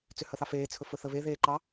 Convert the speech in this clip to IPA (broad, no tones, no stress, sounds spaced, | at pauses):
t͡s ʏ h ə θ ɑ f eː t͡sʰ ɵ f ɵ θ ə β e ð eː ǃ ɑ